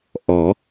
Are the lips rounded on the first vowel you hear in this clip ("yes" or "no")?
yes